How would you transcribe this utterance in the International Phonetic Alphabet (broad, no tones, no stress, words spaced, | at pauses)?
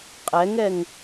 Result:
qʼɛŋɛŋ